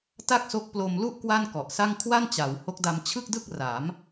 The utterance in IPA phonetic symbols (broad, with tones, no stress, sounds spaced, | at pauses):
t a˥˩ k̚ s o˦˥ k̚ p l o˧ m l u˥˩ ʔ k w a˥˩ n k ɔ˨˩ ʔ s a˥˩ ŋ kʰ w a˥˩ n t͡ɕ a˩˦ w h o˦˥ k̚ d a˧ m t͡ɕʰ ɯ˥˩ k̚ d ɯ˥˩ k̚ r a˩˦ m